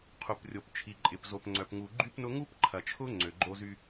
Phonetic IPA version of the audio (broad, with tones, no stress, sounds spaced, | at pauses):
qʰ u˨ p rʲ o˨ p t͡ʃʰ i˨ ǃʼ ɪ˨ p z o˨ p ŋ͡ǀ œ˨ p ŋ u˨ ɡ͡ǃ y˦ p n ʊ˦ ŋ u˦ p ǃʰ ɐ˨ t͡ʃʰ ʊ˦ ŋ͡ǀ ø˨ ɡ͡ǃ o˦ z y˦